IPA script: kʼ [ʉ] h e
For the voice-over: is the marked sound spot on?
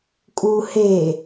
no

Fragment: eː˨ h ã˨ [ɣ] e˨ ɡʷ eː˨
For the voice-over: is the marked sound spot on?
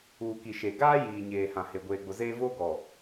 no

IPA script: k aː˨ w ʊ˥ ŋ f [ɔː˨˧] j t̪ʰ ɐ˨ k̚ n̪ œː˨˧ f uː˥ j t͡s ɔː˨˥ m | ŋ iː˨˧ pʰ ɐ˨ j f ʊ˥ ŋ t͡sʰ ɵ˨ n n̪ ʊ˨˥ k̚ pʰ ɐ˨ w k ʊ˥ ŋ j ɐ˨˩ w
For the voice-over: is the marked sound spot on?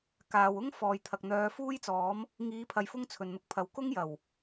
no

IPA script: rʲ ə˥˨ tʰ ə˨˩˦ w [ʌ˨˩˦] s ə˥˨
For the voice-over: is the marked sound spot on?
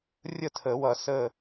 yes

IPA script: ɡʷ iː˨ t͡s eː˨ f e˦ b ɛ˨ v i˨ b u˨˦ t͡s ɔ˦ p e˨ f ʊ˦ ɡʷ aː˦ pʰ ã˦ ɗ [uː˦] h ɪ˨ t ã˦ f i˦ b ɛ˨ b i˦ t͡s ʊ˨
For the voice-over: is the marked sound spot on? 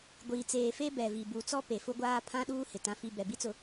yes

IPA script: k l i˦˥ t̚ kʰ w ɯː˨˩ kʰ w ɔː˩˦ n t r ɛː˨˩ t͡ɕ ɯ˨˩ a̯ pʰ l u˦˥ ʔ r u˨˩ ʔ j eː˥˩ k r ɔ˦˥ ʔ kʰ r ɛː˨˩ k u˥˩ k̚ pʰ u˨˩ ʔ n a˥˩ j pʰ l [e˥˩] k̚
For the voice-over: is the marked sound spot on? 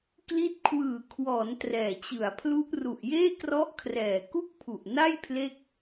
yes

